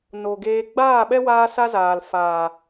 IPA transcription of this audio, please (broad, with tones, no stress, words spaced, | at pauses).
no˨ɡeː˧ ɡ͡baː˦˨ɓɛ˦ waː˦sa˦zaː˨l faː˨